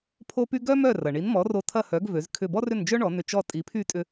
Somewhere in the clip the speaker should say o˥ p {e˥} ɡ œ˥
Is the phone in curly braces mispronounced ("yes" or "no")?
yes